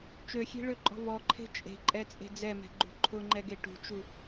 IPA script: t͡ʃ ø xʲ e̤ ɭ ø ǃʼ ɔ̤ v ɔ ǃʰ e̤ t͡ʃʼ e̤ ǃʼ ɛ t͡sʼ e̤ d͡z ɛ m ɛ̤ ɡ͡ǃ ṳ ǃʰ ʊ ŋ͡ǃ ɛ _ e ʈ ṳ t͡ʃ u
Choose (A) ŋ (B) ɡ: B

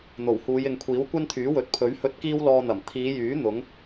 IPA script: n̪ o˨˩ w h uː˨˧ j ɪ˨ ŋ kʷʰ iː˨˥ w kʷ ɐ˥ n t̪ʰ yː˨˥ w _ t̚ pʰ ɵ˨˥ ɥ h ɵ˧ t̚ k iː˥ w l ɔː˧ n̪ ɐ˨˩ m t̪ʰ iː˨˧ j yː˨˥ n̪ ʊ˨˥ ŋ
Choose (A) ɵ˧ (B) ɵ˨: B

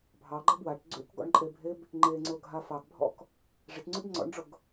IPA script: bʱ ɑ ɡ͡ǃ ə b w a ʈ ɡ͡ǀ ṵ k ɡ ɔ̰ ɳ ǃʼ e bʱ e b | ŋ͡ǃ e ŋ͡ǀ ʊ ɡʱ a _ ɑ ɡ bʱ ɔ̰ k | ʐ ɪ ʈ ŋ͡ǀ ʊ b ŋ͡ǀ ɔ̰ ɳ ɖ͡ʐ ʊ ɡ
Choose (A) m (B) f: B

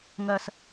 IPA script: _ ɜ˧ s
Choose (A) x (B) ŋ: B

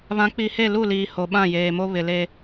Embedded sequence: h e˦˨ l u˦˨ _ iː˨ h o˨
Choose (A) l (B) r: A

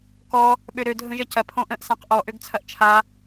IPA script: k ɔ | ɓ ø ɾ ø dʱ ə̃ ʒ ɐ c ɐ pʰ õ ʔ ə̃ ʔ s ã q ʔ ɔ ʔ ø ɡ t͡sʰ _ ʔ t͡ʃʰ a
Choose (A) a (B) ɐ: B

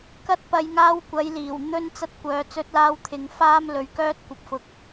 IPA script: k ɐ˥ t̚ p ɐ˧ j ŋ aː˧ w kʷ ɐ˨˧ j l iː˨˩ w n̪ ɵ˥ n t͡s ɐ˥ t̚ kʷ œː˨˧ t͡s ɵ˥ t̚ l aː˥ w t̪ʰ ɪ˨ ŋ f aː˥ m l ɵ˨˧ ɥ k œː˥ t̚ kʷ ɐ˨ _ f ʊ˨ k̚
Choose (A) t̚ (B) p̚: B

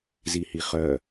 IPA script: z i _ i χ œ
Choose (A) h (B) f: A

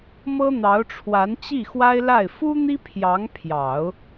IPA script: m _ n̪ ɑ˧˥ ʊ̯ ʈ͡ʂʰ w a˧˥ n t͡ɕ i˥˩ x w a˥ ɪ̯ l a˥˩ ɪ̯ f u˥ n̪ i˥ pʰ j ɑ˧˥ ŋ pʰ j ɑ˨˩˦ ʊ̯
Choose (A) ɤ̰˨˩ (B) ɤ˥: B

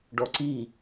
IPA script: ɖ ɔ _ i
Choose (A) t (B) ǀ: B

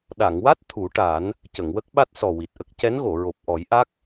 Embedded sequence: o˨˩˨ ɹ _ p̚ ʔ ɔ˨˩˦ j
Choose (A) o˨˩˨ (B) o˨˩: B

